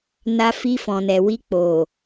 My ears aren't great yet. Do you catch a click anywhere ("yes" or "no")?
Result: no